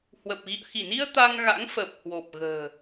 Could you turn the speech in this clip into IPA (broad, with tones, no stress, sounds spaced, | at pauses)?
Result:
h w ə˨˩ p̚ ɣ ḭ˧˨ ə̯ x i˧˩ n i˧ ə̯ t̪ a˧ ŋ ɣ a̰˧˥ ŋ f əː˨˩ p̚ h w o˨˩ p̚ ɣ ə̤ː˨˩